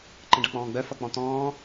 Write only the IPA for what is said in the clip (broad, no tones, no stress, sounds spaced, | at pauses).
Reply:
ǃ ə̃ ɖ ʌ k͡p ɔ̃ː ɡ͡b œ f ʌ k͡p ɔ̃ t̪ ɔ̃ː